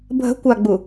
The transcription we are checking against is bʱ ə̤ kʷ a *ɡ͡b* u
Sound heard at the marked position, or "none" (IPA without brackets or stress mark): ɡ͡b